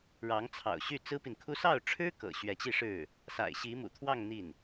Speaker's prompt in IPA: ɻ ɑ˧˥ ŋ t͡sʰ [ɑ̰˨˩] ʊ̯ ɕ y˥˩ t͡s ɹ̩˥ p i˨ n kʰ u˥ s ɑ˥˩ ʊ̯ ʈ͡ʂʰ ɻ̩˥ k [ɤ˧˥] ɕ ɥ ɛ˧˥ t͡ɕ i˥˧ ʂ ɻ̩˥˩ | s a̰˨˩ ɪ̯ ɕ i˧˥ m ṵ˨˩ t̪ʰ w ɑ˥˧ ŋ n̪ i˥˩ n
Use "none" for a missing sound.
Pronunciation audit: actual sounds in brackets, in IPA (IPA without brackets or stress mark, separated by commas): ɑ̰˨˩, ɤ̰˨˩